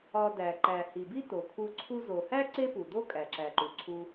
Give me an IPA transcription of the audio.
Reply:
ɒ˧ d æ˩ ǃ æ˩ h i˩ b i˥ t o˩ kʰ u˧ ǀʰ u˧ z o˩ h æ˥ ǀ e˥ p u˩ d o˥ kʼ æ˩ ǁ æ˩ ǃ u˩ ǀʰ u˧

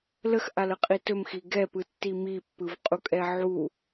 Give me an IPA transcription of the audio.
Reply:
l ə x ʔ a l ə qʼ i t ɵ m x i ɡ ɛ p ɯ tː i m i pː ɯ v qʼ u kʼ ɛ ʕ u

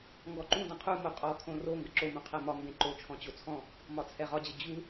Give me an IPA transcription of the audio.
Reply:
ŋ ɡ ɔ ǃ ũ d ə̃ qʰ u m o qʼ ɔ kʰ õ r o ŋ ɡ ə ǁ o m ũ qʰ ɛ m ɒ m b ẽ ǃ o t͡ʃʰ ɔ̃ t͡ɕ o t͡sʰ ɔ̃ | m ɒ t͡sʰ ɛ ʁ ɒ d͡ʑ ə d͡ʑ u

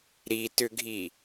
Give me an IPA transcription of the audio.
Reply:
ɾ i t ʏ ɡʱ i

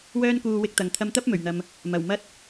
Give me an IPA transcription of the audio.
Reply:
w œː˥ n k uː˧ w ɪ˧ k̚ t̪ ɐ˨ ŋ t̪ʰ ɐ˧ m t̪ ɐ˥ p̚ m ɵ˨˩ ɥ n̪ ɐ˨ m | m ɐ˨˩ w m ɐ˥ t̚

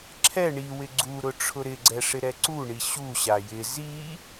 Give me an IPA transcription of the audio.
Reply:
ǁʰ ɛ ɳ i w ɪ ɡ͡ǀ u ɾ ʊ ʈ͡ʂʰ ʊ ɾ ɪ ɡ͡ǀ ɛ ʂ ɪ ɾ ɛ ǀ u ɳ i ɕ u ɕ a j ɪ z i

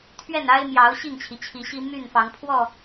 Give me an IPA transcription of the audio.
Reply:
t̪ʰ ɥ ɛ˥˨ n a˦ ɪ̯ m j ɑ˨˦ ʊ̯ ɕ i˥˨ ŋ t͡ɕʰ i˩ t͡ɕʰ i˨˦ ɕ i˦ m y˥˨ n f ɑ˨˦ ŋ pʰ w ɔ˥˨

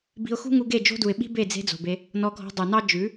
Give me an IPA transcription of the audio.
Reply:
b i̤˧ ʊ̯ x ṳ˦ ŋ u˧ ɡ e˦˨ d͡ʒ o̤˦ d u˨ ɪ̯ ɓ i̤˦ b e˦˨ d͡z e̤˧ d͡z o̤˨ b e˧ | n ɔ˧ ɡʱ ɔ̤˧ dˤ u˨ n ɑ˦ d͡ʒ ʉ˨˦

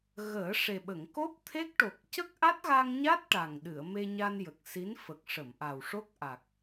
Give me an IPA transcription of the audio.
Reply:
ɣ əː˨˩˦ ʂ e˨˩ ɓ ə˨˩˨ ŋ k o˦˥ p̚ t̪ʰ e˦˥ k̚ ʈ o˨˩ k̚ c ə˦˥ k̚ ʔ a˦˥ t̚ ɣ a˧ ŋ ɲ a˦˥ t̚ ʈ a˨˩ ŋ ɗ ɨ˨˩˨ ə̯ m e˧ ɲ a˧ n j ə˨˩ k̚ s i˧˥ n f ə˨˩ k̚ ʂ ə˨˩˨ m ʔ a˨˩ w ʂ o˦˥ k̚ ʔ a˨˩ k̚

